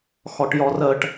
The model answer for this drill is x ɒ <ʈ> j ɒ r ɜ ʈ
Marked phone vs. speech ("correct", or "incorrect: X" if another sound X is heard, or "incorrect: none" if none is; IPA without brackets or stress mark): correct